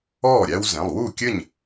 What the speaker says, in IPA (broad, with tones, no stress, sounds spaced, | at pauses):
ɔː˥˩ ɾʲ æ˦ w z ɛ̃˩˧˩ lˠ w u˥˩ kʲ ɘ˥˩ ɲ